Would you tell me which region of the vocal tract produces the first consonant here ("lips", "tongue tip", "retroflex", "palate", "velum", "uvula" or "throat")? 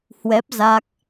throat